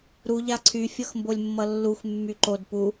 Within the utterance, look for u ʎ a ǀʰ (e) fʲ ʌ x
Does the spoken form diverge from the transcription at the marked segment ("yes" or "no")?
yes